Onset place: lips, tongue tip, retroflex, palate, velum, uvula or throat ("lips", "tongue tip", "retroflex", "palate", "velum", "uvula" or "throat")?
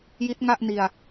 palate